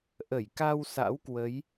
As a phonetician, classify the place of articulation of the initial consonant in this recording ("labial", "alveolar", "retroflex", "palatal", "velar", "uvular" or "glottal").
glottal